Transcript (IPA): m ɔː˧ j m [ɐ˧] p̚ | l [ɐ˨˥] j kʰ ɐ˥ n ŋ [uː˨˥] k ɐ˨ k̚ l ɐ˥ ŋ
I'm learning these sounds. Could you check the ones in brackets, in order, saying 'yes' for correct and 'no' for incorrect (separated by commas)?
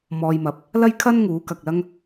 no, no, yes